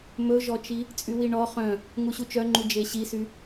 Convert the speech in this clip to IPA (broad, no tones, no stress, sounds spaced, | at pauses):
m ɵ ʒ ɔ t͡ʃ i | t͡sʼ y w i ɳ ɔ χ œ̃ | ŋ u ɕ u t͡ʃ œ ŋ͡ǃ u d͡ʒ e ɕ i s y